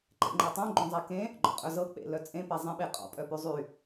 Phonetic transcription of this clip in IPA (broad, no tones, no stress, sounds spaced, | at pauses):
ǃ ḛ ŋ͡ǃ ɤ tˤ õ ɡ͡ǃ õ zˤ ɛ k ẽ | ɡ͡ǃ ɔ̰ qʼ œ z ɤ k͡p ḛ l œ t͡sʼ ẽ p e zˤ ĩ ɓ e qʼ ɔ̰ pʼ œ p y zˤ y